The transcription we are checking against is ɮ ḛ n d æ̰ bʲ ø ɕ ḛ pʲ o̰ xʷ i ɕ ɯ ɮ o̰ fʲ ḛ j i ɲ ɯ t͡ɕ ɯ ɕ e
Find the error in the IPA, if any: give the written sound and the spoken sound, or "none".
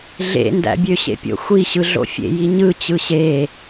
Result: none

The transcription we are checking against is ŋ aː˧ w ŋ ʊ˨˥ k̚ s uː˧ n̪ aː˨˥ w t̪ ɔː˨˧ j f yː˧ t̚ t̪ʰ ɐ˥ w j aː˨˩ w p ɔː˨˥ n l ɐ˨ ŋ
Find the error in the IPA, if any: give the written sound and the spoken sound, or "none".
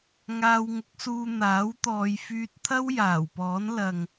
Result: none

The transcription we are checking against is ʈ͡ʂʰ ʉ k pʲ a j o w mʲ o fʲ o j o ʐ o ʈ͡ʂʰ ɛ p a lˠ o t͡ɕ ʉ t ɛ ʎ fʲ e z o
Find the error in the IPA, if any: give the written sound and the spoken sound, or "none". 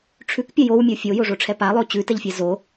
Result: e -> ɛ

